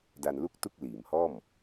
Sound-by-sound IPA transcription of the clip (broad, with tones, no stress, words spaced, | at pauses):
da˧nlu˥˩k̚tu˥˩k̚ liː˩˦mhɔː˥˩m